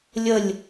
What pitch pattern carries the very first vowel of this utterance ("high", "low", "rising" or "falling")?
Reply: falling